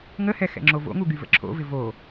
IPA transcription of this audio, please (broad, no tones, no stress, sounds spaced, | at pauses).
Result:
ŋ ə h ɛ x ɛ̰ ŋ͡ǁ o v o̰ ŋ u ɡ y v ə̰ ǁʰ o̰ v ɪ v o